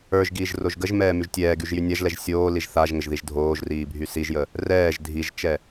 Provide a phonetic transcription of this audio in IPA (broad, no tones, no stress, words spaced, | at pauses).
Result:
ə˞ʒ ɡiːʒroʒɡəʒmɛː myʒtʲɛːɡyʒ jynʲaʒlɛʒ sʲoː liʒθaʒŋəʒ ðiʒdʱoːʒriː bʱysiʒjə | rɛːʒ dʱiʒt͡ʃɛ